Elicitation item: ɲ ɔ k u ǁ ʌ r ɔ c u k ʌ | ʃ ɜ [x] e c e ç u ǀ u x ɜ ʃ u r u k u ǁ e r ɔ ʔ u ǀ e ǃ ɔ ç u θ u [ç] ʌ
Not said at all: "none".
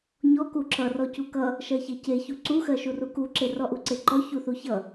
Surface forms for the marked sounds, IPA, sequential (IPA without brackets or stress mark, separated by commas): ç, ç